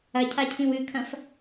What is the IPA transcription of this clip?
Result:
ɐ cʰ a cʰ ĩ w ɨ kʰ ɐ̃ f

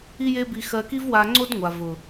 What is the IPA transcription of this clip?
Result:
i˦ j e˦ b i˧ x ɜ˧ k i˦ v w a˧ ŋ͡ǀ o˦ d ŋʷ a˨ v ʊ˨

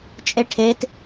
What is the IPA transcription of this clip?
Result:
t͡ʃʼ e ʈʰ e t

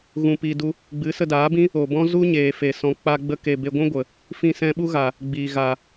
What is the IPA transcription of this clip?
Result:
ɣ ũ˧ p iː˧ d u˦ | ɡ͡b ɨ˨˦ s ə˧ d aː˨˦ b ĩ˦ | o˨ b ɔ̃˦ z u˦ ɲ eː˨ f e˨ s ɔ̃˨˦ k͡p a˧ ɡ͡b ə˧ k e˨ b e˧ ɡʷ ũ˦ ɡʷ ə˨ | f ĩ˧ s ɛ̃˧ ɓ u˦ ɣ a˨ | ɡ͡b iː˨ ɣ a˨

